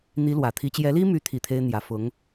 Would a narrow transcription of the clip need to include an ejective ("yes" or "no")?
no